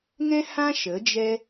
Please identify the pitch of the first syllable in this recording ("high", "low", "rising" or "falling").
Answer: high